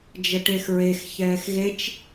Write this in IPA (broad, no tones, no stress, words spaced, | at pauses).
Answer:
d͡ʒəʈexɹex çɛːxɣet͡ʃ